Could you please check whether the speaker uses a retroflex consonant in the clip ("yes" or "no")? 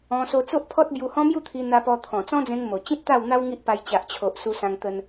no